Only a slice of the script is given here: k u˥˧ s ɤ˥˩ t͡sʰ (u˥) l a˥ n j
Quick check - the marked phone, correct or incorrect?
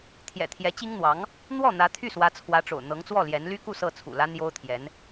incorrect